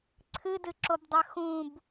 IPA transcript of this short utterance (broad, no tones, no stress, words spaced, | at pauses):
ǀʰɨdɨǁobdˤɐ xũb